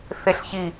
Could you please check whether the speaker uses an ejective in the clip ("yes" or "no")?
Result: no